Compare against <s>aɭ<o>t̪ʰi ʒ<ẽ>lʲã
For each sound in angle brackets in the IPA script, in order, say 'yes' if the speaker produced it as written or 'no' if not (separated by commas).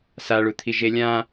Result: yes, no, no